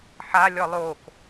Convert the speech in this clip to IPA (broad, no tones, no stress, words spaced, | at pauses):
ħa lʲɔlˠok